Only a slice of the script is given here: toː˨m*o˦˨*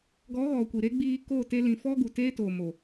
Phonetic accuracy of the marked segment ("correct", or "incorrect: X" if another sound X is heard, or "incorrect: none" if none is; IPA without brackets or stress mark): incorrect: o˨